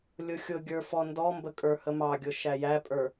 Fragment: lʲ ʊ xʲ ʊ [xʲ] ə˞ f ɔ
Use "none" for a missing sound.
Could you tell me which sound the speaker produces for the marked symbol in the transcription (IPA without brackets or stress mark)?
ɡʲ